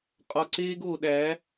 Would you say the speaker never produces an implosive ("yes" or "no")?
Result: no